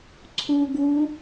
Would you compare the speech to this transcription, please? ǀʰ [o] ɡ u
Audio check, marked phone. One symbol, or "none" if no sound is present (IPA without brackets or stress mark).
u